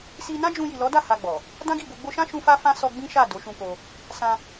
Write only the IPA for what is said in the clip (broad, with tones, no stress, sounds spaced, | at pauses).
s i˧ n ã˦ d͡ʒ ũ˧ j i˨ l ɔ˨˦ d a˦˨ h a˧ ɡ͡b ɔ˨ | d ã˦ ɡ i˦˨ b o˧ ɡ͡b o˧ ʃ ã˦ ʃ ũ˧ f a˦ f ã˦ s ɔ˧ ɡ͡b ĩ˦ ʃ a˦˨ d o˨˦ ʃ ũ˧ k o˧ | s ã˧